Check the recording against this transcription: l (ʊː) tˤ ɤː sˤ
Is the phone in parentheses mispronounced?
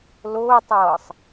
no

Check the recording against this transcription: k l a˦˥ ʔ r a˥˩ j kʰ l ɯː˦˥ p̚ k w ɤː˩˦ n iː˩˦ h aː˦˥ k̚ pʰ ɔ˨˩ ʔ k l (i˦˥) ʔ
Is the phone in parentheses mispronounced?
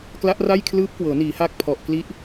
no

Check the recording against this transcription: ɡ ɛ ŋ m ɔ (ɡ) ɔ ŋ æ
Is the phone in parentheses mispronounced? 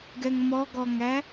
no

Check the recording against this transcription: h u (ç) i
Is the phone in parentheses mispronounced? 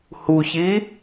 no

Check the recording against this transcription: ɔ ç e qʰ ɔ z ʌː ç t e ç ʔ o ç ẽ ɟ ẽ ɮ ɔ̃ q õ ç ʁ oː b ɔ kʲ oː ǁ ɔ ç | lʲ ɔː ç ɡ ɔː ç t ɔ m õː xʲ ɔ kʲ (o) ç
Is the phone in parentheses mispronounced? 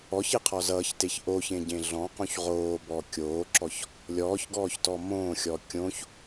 yes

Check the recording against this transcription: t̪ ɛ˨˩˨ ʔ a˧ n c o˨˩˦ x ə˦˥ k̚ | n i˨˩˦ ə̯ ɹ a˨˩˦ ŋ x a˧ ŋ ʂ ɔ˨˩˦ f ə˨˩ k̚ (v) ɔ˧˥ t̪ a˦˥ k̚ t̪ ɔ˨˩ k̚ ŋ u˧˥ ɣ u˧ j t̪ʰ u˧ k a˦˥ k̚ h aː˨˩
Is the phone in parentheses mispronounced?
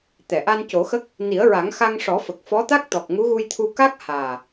yes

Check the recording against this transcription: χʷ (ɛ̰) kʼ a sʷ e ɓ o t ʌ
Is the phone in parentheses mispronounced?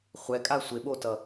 yes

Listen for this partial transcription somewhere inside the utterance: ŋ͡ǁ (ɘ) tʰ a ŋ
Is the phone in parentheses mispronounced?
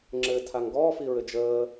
no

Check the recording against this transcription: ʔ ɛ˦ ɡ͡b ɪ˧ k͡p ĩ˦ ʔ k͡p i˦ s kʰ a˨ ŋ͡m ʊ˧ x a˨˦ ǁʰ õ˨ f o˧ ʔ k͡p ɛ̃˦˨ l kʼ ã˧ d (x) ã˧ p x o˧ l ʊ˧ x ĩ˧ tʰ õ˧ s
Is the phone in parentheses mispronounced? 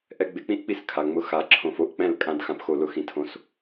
no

